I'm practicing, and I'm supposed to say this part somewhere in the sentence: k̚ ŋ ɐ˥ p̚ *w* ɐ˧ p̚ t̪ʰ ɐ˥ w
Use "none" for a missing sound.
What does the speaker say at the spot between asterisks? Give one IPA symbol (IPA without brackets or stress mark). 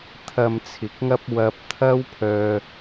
w